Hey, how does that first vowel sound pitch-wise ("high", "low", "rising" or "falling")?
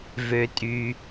low